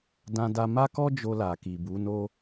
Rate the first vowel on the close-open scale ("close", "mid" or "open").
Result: open